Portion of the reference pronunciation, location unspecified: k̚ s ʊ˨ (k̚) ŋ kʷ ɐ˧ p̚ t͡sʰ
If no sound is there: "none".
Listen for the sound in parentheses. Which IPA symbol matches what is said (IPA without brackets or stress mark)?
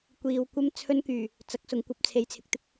none